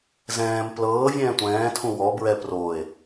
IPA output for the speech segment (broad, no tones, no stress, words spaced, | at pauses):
zɛ̃ːm plɤː vʲɛ̃ːtʷɛ̃ːtʰũ wɔ bɹɛ proe̯